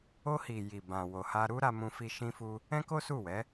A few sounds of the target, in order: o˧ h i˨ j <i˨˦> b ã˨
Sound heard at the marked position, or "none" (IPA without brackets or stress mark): i˨